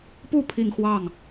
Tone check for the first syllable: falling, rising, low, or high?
falling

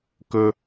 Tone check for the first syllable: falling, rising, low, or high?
high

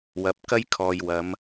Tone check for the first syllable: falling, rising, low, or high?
rising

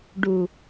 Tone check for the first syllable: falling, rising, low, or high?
low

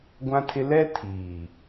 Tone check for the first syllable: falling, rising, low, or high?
high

